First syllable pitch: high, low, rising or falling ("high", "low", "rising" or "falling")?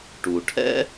low